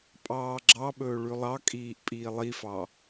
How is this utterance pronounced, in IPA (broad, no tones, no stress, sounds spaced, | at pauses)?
pʼ ɑː ɡ͡ǁ ɑ ɓ ɵː ɭ ʉ lˠ ɑ kʼ iː ʔ pʼ iː lˠ i f ɑ